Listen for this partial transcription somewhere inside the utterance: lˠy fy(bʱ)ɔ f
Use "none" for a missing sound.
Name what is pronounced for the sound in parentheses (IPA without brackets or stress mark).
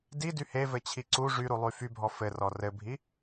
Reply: bʱ